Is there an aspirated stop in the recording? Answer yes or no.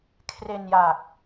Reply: yes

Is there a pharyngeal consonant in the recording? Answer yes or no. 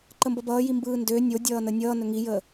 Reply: no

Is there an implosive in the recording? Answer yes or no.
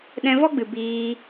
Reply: yes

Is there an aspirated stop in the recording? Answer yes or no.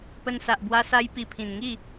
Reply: yes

